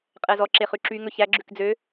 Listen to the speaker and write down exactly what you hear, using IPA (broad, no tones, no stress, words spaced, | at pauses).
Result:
qʼɛzɔ ǁeχʉǁy ŋɵçæ ɡ͡ǁʉkd͡zø